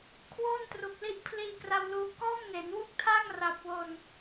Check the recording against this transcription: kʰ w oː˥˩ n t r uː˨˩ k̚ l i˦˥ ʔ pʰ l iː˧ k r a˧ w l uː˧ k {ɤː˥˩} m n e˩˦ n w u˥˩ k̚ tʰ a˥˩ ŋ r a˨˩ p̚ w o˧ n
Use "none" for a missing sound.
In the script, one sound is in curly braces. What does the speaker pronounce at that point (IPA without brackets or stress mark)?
ɔː˥˩